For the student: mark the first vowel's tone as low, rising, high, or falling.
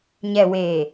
low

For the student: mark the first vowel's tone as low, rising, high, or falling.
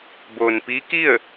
low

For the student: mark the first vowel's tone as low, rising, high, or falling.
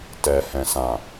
low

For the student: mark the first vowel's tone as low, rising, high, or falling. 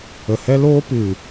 low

